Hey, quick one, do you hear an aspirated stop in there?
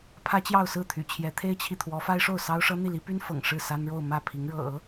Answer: yes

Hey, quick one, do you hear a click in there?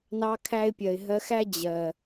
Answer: no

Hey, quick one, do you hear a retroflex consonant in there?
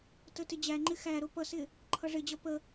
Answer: yes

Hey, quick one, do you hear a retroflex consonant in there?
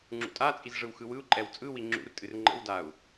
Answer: yes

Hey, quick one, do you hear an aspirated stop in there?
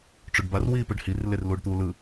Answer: no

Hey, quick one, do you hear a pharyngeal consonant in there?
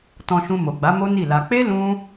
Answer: no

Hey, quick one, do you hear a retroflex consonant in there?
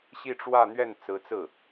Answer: yes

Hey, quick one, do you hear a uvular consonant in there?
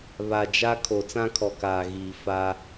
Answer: no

